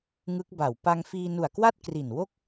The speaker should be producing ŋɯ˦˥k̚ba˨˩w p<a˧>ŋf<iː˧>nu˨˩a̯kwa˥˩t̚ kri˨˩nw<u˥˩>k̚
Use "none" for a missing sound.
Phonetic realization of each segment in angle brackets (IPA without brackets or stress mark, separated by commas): a˧, iː˧, o˥˩